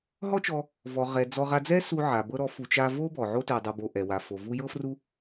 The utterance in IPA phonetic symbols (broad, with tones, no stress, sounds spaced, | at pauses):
ɦ ɔ˦ t͡ʃ ɔ˧ | v ɔ˨ ʁ ɛ˨ d͡z ɔ˧ ʁ a˧ d͡z ɛ˦ s u˧ ʕ a˨ b ɤ˧ ɾ ɔ˨˦ f u˨ t͡ʃ a˧ v o˦ b ɔ˨ ʕ o˦ t ɛ˧ dˤ u˧ b o˧ ʔ ɛ˨ w a˨ f o˨ v u˦ j ɤ˦ f r u˦